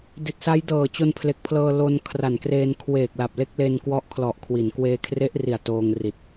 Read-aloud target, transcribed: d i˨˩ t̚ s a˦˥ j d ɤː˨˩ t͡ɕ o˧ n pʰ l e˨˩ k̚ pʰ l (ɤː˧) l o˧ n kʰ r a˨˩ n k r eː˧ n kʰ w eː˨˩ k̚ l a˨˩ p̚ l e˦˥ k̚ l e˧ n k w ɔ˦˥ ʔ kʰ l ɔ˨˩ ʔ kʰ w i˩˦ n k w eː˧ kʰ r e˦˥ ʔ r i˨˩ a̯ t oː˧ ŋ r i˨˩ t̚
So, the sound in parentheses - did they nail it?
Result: yes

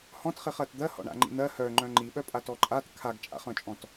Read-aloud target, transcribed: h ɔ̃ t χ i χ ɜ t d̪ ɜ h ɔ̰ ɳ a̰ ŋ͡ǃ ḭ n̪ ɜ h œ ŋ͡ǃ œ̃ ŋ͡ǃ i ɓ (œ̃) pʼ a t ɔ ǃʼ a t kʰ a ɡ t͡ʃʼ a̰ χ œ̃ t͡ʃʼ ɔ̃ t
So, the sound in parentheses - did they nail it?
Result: no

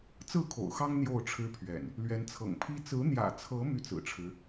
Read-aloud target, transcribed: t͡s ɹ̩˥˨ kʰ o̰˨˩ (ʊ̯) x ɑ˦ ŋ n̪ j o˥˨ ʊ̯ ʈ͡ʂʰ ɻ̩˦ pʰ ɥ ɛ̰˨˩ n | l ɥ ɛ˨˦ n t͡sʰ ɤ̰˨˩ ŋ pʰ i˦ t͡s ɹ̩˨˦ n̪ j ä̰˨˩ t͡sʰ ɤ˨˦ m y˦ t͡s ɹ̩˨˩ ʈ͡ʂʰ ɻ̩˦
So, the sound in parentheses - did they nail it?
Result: yes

